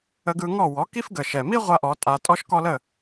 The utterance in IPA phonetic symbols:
ə˧ɡɯ˧ŋɔ˥˩ wɔ˩˥ki˥fɡə˩ ʃɛ˩mi˥ʁʷa˧ ʔɔ˩˥tʼa˧ tʼɔ˥ʃkɔ˥lə˥˩

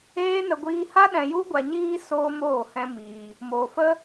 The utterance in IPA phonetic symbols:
eː˦nə˧ ɡʷiː˧ha˦ ɗɛ̃˧ju˦ ɡʷa˧ɲiː˦ soː˦moː˦˨hɛ̃˦miː˧ | moː˨fə˦

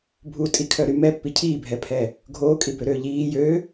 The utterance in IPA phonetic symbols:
bʱutʼikʰœɾy mɛpːi cʰiːbʱɛpʰɛ | ɡʱoːkʼibøɾøː ʎiː jø

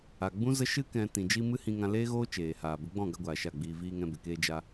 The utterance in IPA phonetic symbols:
a˨ɡ͡bũ˦zə˦ʃɨ˦ kɛ̃˨ tĩ˨d͡ʒi˧ mɨ˦hĩ˧ŋã˧ leː˦ɣoː˦t͡ʃeː˨haː˨ bə˨˦ɡ͡bɔ̃˦˨ɡa˧ɡʷaː˨ ʃa˦˨ɡ͡biː˧ viː˧ŋɛ̃˧be˨ keː˧d͡ʒa˧

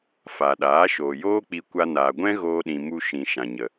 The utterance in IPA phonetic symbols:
fa˨ɗaː˨˦ ʃoː˨joː˦k͡pi˧kʷa˧ naː˨ɡʷɛ̃˦ ɣoː˧ɗĩ˨ mu˧ ʃĩ˨ ʃã˨ɲə˨

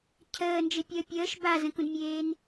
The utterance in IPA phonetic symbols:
cʰəːnd͡ʒepʲəː pʲəːʃ bazə̃kũdmʲeːn

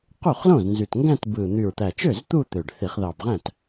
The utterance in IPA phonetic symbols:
qu˥˩χlõ˥˩znzy˨˩tŋɡæ̃˥˧t bɯ˨˩ n̪y˨˩ɹt̪æ˨˩t͡ʃø˥˩z t̪u˥˧t̪ø˨˩ɖθi˧˩˧χ ðɑ˨˩bʁæ̃˥˩t

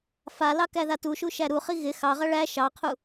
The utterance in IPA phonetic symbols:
falɑ kæðatuʃu ʃæɾuχi ɣɪ xɑʁɐ ɭæ ʃɑqʰu

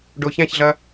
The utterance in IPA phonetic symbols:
ɖoçæ̃çɮɐ

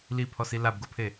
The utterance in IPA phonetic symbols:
lipʰɔsi labɡopʰe

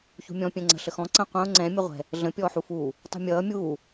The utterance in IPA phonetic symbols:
çṳmʲɔ̃ pʲɛ̃ŋ͡ǀə̤ ɬəxɔ̃ ǀə̃ qʷɐ̃ʊ̯ ŋ͡ǀɛ̃ mʲəʁʷɛ̤ | ɮə̃ pʲɔːħufuː | tˤṳmʲʌː mʲuː

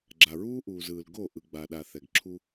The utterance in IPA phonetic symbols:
ɡ͡ǁa˨ɹuː˦ʔuː˨zɯː˨l ɡo˦˨ ʔɯ˨ɡ͡ba˨ ɗa˨θɛ˨ɡǁʰu˦

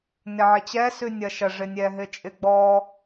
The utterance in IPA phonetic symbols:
nɪʕɪt͡ɕɛ sʉnʲɐʃɐ ʐɪnʲɛɦɪt͡ʃʼɪ ɡ͡bɔ

